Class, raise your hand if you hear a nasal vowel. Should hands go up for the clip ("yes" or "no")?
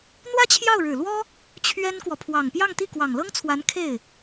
no